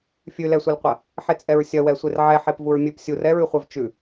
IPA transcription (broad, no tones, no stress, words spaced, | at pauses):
fʲʉlɛsʷelqʷɐ | ħet͡sʼɛɹsʲɐwɛ sʷerʕɛħep vuɹmʲʉpsʲur ɛɹʉχʷɛvt͡ʃʉ